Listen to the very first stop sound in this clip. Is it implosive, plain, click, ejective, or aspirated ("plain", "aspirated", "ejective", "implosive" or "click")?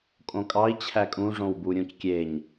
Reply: ejective